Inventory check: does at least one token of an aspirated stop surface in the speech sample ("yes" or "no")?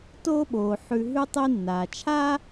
yes